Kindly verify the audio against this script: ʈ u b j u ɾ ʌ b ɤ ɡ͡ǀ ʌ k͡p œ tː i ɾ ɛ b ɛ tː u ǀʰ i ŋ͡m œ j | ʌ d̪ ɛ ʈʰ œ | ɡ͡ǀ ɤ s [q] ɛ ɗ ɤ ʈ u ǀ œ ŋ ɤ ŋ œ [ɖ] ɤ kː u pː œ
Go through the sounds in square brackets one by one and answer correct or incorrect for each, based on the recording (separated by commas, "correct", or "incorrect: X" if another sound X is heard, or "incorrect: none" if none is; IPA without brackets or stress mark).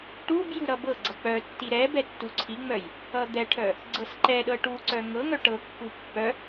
incorrect: ǃ, incorrect: ʈ